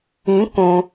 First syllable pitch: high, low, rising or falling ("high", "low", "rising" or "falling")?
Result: rising